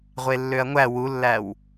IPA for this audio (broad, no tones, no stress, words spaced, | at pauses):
ʁʷelːøɐ̯ŋʷæ wulːæw